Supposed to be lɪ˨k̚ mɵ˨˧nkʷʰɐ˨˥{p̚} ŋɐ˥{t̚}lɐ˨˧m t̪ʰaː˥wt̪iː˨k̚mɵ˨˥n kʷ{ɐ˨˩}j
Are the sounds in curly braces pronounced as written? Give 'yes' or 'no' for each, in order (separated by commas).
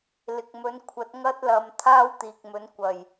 no, yes, yes